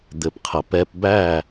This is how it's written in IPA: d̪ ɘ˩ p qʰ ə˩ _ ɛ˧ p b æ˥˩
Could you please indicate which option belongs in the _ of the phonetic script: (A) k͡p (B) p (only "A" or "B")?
B